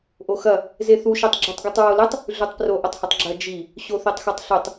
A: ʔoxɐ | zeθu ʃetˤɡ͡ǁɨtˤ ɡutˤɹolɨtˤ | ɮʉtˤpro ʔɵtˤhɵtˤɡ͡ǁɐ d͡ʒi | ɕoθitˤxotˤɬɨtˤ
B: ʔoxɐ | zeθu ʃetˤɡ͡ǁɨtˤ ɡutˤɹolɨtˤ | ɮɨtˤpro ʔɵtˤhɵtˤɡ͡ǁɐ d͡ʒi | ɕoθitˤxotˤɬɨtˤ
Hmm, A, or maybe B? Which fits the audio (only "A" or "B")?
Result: A